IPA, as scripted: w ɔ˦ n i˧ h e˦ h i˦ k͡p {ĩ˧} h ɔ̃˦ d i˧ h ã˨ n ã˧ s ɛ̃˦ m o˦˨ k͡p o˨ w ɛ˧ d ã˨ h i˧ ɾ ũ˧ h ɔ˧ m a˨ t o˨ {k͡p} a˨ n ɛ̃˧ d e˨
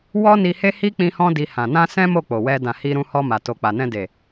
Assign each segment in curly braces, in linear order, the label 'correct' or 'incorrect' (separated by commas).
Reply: correct, correct